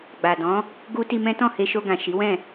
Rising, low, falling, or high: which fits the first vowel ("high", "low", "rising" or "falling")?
low